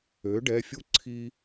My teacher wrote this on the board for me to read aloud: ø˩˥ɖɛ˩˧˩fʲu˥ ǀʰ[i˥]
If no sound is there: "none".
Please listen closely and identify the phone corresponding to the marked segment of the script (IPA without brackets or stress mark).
i˥